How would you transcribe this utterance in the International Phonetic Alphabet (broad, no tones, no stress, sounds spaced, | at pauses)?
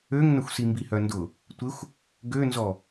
ø ŋ n ə xʷ s i m b i h œ n d ʊ | tʷ ɪ xʷ | ɡ ø n z ɔ